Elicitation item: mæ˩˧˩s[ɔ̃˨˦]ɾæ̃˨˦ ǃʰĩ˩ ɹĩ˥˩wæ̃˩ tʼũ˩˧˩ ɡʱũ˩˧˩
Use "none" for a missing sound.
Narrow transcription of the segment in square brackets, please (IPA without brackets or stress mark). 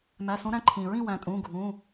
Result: õ˨˦